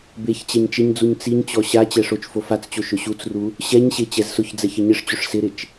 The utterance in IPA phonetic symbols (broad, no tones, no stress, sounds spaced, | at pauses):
b e ç t͡ɕ ɛ ɲ t͡ʃ ɪ ɲ d͡z u ɲ t͡s i ɲ t͡ɕ ɔ ɕ a t͡ɕ ɛ ʂ o t͡ʃ f o f a t͡s t͡ɕ o ʃ ʊ ɕ u t͡s r u | ɕ ɛ ɲ ɕ e t͡ɕ ɛ z s ʊ ç d͡z ɛ ç ɪ ɲ ɪ ʂ t͡ɕ ʊ ʂ s ɪ ɾ ɪ t͡ʃ